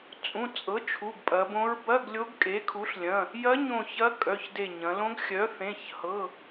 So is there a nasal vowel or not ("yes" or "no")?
yes